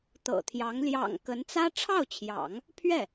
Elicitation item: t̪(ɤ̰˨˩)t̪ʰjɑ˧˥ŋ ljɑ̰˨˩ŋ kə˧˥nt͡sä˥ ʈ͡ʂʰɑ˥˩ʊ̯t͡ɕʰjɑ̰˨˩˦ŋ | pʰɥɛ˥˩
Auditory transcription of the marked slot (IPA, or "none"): ɤ̰˨˩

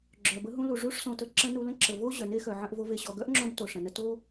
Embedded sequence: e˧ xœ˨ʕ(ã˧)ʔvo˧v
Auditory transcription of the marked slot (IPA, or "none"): ə̃˧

